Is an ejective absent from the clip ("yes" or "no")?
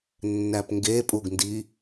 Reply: no